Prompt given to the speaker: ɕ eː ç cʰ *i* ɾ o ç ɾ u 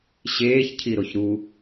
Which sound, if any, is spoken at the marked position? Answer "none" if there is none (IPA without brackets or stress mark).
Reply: i